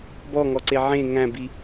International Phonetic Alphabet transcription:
b ɔ ŋ ɔ ǀ e ʕ ẽ ŋ æ̃ b i

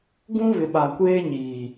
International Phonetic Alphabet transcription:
ɡ ũ˦ β ɪ˨ ɓ a˨ kʷ eː˦ ɲ iː˨

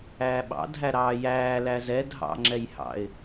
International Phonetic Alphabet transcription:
æː ɓ ɑ̰ dʱ æ ɾ ɑː j æː l æ z ɛ dʱ ɑ̰ ŋ͡ǁ ɛ j h ɑ̰ ɪ̯

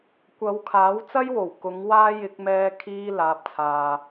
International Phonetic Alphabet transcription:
kʷ ɐ˨˧ w kʰ aː˨˥ w t͡s ɐ˥ j w o˨˩ w k ʊ˨˥ ŋ w aː˥ j ɪ˧ k̚ m ɛː˧ kʰ iː˥ l aː˨˥ p̚ t͡sʰ aː˨

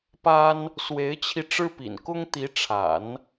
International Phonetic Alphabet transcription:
p a˥ n | s w e˧˥ ɪ̯ t͡ɕʰ i˧ ʈ͡ʂ ɻ̩˥ p ḭ˨˩ n k ʊ˥ ŋ t̪ i˧˥ ʈ͡ʂʰ a̰˨˩˦ n

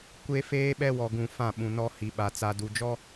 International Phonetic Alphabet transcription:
kʷ e˦ f eː˦ ɓ ɛ˦ w ɔ˨ ɡ ũ˨ f ã˦˨ ɓ ũ˨ n ɔ˦ h i˨ ɓ a˨ t͡s a˨ d u˨ d͡ʒ ɔ˦

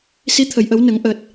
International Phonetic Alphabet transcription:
s i˧˥ t̪ʰ ə˨˩˨ j ʔ ə˨˩˦ w n ə˨˩˦ ŋ ʔ əː˨˩ t̚

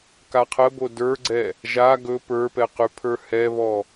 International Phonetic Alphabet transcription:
k a qʰ ə b o d ə˞ ɡ͡ǀ ɛ | ʒ a ɡ ɵ p ə˞ p ɛ q y pʰ ə˞ h ɛ β ɔ

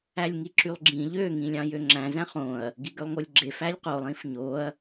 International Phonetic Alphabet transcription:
æ lʲ ŋ i ǁ y lˠ ɡ͡ǁ ĩ ʎ ø ŋ ĩ lʲ ɑ̃ j ø ŋ͡ǁ æ̃ z æ̃ χ õ ɐ̯ | ɡ i ɡ ø lˠ ŋ o lʲ ɡ͡ǁ e f æ lʲ q o lˠ ĩ f ɲ o ɐ̯

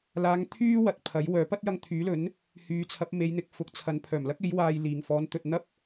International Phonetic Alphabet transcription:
l aː˨˧ ŋ t̪ʰ yː˥ w ɐ˨ t̚ pʰ ɐ˨˥ j w œː˨˥ p ɐ˥ t̚ j ɐ˧ ŋ t̪ʰ yː˨˥ l ɵ˨˥ n | h yː˨˧ t͡sʰ ɐ˨˥ p̚ m e˨˧ j n̪ ɪ˨ k̚ f ʊ˨˥ k̚ t͡sʰ ɐ˨˧ n pʰ œː˨˩ m l ɐ˥ k̚ e˨˥ j w aː˧ j l iː˨ ŋ f ɔː˨˥ n t̪ ɵ˨ t̚ n̪ ɐ˥ p̚

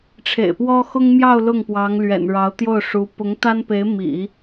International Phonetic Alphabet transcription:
ʈ͡ʂʰ ḛ˨˩ ɪ̯ p w ɔ˥ x ʊ˥ ŋ m j ɑ˥˧ ʊ̯ l ʊ˥˩ ŋ p w ɑ˧˥ ŋ l ɥ ɛ̰˨˩ n ɻ ɑ˧˥ ʊ̯ t̪ j o˥˩ ʊ̯ ʂ u˧˥ p ʊ˧˥ ŋ t̪ a˥ n p e˧˥ ɪ̯ m ḭ˨˩˦

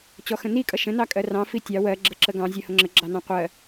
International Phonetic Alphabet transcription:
t͡ɕ ɔ x ə̃ n i kʼ ʌ ʃ ə̃ n ɑ kʼ ɜ r ɑ̃ f i tʲ ɑ w ɜ ɡ͡ǁ ə ǁ ə ɡ ɑ̃ zʲ ɜ h ʊ ŋ͡ǁ ə ɡ͡ǁ ɑ n ɑ̃ qʷ ɜ

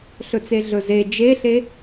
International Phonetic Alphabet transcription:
ɬ ɵ t͡s e ɮ ɵ z e d͡ʒ e ɬ e

